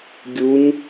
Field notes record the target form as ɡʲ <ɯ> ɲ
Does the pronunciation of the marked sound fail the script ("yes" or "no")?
yes